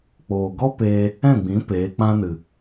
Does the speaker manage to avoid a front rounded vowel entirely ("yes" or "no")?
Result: yes